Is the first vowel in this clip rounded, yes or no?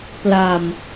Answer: no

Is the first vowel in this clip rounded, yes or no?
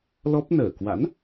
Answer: yes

